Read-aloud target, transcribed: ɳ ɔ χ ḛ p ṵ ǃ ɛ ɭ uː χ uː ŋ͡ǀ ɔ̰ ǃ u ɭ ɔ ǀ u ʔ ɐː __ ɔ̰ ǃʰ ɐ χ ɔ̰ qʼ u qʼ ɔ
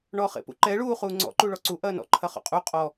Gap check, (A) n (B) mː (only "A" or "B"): A